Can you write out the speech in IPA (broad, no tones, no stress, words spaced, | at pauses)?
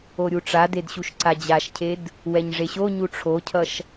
oɾʲuʈ͡ʂaded ɕuʃǀad͡ʑaʃcʰed | wɛɲʐeɕoɲu ʈ͡ʂʰocʰʌʃ